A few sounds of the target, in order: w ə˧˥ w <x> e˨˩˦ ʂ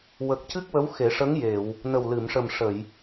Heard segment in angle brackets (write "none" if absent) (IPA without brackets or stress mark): x